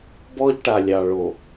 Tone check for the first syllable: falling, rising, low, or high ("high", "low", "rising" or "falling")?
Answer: high